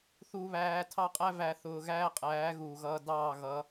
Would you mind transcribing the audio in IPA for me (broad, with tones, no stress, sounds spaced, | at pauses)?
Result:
θ u˨ β æː˨ tʰ ɑ˦ qʼ æ˦ v æ˨ θ ʊː˨ ɣ æː˦ qʼ æː˨˦ ɣ uː˨ ɣ ʌː˦ d ɑː˦˨ ɣ ʌ˨˦